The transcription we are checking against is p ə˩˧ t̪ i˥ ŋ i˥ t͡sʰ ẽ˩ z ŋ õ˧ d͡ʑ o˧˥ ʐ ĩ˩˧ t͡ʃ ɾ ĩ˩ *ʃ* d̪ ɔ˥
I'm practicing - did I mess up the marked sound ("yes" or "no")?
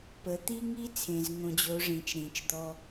yes